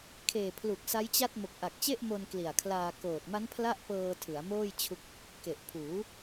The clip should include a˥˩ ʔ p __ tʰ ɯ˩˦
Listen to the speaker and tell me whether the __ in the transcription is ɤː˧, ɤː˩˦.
ɤː˧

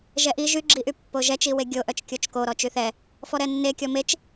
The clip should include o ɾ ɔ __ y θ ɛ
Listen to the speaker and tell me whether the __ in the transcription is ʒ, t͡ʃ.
t͡ʃ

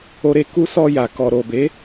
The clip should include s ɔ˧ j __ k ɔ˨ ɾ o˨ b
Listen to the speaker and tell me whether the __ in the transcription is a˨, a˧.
a˨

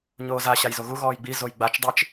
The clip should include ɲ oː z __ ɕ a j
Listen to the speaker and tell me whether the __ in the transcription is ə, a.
a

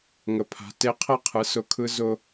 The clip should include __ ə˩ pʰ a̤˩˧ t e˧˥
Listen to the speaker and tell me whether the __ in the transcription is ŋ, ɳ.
ŋ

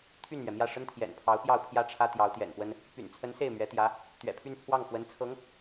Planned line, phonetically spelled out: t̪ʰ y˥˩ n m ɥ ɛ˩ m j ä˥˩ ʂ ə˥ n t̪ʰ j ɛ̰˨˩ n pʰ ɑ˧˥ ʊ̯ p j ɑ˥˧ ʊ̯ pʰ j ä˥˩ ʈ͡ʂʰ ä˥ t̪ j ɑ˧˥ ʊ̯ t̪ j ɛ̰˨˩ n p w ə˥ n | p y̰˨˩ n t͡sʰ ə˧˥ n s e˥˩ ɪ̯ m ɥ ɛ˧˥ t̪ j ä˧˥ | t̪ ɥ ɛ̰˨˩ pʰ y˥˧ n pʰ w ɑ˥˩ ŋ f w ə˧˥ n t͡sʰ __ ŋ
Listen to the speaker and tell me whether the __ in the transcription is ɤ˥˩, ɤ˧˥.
ɤ˧˥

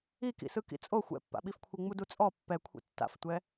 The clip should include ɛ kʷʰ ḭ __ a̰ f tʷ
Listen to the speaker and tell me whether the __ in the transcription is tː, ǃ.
tː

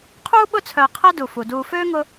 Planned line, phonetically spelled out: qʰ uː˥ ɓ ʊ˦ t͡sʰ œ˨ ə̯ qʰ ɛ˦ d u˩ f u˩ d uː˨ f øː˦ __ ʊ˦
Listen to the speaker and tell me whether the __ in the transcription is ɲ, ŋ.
ŋ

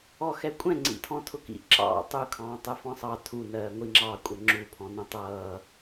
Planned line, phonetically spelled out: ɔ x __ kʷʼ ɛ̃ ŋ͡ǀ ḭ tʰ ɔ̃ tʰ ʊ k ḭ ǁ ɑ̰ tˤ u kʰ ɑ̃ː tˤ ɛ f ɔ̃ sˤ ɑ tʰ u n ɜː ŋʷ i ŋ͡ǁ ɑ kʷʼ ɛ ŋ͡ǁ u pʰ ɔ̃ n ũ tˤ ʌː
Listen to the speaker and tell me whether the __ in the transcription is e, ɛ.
ɛ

